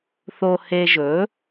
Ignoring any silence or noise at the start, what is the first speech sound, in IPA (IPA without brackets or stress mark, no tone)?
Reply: θ